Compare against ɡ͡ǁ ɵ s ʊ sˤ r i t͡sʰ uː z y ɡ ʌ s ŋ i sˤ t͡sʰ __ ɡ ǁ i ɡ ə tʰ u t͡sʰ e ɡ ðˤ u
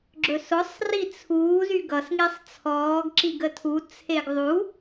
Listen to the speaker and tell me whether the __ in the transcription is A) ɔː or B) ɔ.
A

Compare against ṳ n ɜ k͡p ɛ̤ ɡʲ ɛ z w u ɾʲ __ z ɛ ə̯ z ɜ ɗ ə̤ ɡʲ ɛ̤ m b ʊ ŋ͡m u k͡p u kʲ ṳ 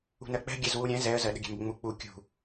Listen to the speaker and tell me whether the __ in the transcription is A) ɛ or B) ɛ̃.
B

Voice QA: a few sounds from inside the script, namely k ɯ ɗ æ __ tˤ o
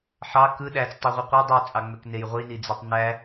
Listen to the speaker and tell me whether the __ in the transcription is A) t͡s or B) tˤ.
A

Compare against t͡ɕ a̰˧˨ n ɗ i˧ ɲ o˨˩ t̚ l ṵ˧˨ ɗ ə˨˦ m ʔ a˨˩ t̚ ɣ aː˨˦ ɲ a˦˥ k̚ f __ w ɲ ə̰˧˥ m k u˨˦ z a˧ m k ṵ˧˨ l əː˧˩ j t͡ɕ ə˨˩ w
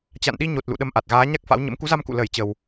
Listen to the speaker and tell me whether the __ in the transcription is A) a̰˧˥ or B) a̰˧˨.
A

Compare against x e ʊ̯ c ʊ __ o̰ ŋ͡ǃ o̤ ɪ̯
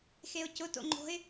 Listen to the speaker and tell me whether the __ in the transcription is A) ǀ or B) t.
B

